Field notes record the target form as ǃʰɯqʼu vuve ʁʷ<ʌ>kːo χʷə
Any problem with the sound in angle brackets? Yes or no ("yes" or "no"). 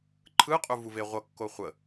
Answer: no